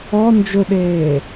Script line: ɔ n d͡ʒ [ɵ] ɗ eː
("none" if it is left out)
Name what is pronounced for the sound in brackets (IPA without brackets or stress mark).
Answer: ɵ